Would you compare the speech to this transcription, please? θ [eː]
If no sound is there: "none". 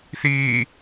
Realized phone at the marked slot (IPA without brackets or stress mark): iː